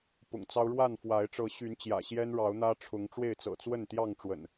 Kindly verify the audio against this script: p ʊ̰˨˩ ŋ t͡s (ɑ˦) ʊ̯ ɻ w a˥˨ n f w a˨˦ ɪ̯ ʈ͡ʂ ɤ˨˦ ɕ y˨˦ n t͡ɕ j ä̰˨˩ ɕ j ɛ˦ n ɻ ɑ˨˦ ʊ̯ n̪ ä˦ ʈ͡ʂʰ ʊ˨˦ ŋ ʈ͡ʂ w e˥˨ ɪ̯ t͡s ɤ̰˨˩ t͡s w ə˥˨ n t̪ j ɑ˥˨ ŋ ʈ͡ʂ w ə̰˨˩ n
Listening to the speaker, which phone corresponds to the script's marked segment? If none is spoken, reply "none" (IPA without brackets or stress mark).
ɑ˦